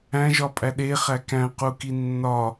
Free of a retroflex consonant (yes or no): yes